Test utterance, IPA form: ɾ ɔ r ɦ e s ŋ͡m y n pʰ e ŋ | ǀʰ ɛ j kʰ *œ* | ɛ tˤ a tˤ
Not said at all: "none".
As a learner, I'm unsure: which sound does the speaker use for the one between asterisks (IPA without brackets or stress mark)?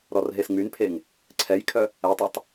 œ